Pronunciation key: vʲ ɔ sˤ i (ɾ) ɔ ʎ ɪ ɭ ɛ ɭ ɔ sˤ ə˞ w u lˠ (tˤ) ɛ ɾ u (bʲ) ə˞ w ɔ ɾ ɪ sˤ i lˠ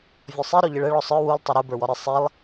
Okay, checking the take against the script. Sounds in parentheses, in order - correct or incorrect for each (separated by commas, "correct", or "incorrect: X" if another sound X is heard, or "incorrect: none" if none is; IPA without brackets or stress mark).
correct, correct, incorrect: b